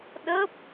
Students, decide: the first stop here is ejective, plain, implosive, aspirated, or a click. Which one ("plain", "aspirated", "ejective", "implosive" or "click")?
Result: implosive